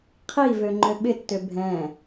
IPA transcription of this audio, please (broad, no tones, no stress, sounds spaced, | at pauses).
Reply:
qʰ i v ø ŋ͡ǃ ø ɓ ɪ tː ø bʱ ɛ̃